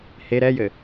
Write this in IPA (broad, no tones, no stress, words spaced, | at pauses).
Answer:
he ɾɛjɘ